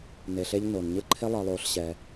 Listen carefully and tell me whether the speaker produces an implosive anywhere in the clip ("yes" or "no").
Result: no